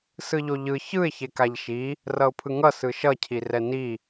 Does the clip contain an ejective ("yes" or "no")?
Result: no